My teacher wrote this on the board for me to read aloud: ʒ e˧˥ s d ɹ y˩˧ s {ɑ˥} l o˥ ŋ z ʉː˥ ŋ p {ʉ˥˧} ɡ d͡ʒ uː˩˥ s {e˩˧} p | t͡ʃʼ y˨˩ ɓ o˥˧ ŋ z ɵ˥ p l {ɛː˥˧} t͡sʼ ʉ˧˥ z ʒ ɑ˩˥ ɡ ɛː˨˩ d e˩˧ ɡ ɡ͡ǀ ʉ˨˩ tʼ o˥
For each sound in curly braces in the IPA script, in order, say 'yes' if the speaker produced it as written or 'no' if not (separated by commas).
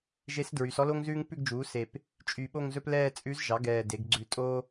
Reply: no, yes, no, yes